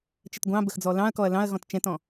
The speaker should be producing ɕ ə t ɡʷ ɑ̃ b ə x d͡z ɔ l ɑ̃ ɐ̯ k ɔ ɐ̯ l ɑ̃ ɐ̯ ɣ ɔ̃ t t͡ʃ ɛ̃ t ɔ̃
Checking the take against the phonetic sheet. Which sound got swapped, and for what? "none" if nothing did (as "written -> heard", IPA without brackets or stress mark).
ɕ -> t͡ʃ